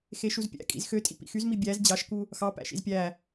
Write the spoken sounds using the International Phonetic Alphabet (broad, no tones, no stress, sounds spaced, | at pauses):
x e ʃ u z pʲ æ̰ kʼ ḭ z x ø tʼ ḭ p ḭ x y z m i bʲ æ z d͡ʑ ɑ ʃ k u | x ɑ p æ̰ ʃ ḭ z pʲ æ